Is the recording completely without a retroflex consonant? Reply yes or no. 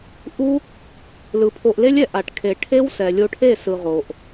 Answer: no